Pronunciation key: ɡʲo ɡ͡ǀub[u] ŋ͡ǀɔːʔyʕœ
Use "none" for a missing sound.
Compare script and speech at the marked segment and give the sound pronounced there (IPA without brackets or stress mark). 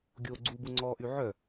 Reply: u